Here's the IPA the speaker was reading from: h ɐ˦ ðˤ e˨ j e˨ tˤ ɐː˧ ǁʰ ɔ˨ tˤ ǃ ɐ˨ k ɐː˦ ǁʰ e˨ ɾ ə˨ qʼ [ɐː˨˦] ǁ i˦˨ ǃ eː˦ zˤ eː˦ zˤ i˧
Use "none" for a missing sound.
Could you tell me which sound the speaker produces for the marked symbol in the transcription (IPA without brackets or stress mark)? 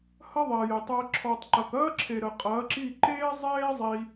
ɐː˨˦